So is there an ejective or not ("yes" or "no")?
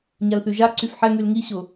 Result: no